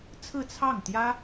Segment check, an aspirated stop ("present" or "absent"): present